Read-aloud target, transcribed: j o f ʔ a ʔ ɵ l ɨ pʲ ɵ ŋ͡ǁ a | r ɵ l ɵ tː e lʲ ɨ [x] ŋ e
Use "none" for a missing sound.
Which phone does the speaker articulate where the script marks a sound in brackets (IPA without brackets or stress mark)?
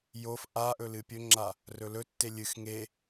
x